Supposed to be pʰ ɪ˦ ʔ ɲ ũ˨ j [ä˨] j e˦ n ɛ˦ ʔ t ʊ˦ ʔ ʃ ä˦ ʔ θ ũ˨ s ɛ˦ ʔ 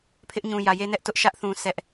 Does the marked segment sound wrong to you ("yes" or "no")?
no